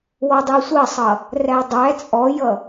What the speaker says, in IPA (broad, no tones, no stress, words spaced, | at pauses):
wɔdˤisʷɜsˤʌ | rædˤæ t͡sʼɔjʌ